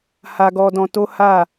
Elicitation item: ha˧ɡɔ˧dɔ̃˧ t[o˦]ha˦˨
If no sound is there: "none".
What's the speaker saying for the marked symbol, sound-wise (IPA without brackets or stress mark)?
o˦